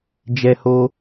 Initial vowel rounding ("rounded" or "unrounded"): unrounded